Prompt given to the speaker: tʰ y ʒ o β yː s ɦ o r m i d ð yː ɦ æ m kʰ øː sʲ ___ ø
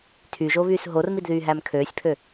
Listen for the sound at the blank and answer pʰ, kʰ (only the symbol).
pʰ